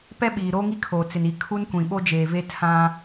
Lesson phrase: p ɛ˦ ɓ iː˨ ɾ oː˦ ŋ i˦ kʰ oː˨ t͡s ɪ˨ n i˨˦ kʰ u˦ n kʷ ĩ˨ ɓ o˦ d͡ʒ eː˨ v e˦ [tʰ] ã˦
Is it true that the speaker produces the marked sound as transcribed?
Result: yes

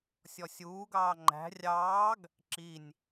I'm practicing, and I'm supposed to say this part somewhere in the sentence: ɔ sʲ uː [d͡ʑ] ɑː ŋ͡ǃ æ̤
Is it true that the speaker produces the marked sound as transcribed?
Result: no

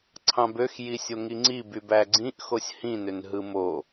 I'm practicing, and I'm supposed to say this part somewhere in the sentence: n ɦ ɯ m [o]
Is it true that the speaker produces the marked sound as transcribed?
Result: yes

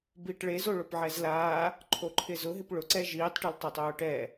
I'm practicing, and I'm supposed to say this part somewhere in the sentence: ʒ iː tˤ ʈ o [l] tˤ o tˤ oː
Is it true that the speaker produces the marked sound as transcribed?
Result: yes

